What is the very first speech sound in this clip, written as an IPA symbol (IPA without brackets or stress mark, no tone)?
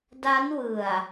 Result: d